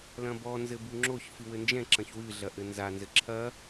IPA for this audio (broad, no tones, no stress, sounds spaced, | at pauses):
l ɐ̃ b ɔ n z ɘ b u ŋ͡ǁ o ç f ɨ w ɘ n d͡ʒ ɛ̃ ǁ ɐ̃ ç w ɨ ɮ ɐ ʔ ɘ n z a n z ɘ ǁʰ ɐ